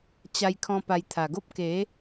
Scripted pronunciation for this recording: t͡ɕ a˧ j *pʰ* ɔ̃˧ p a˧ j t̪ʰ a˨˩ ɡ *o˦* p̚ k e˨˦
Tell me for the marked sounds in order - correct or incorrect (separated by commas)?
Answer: incorrect, correct